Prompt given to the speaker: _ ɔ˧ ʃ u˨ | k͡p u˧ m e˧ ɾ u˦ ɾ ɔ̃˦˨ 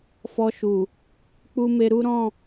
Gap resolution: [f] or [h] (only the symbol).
f